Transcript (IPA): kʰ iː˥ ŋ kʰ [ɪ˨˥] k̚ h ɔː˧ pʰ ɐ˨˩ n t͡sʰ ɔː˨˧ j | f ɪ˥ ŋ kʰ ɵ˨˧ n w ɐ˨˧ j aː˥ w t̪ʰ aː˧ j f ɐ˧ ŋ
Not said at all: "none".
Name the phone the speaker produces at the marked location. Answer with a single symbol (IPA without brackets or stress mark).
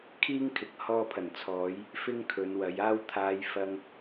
ɪ˨˥